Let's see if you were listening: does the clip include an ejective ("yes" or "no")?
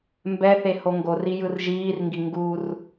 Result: no